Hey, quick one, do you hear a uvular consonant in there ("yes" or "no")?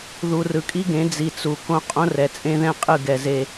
yes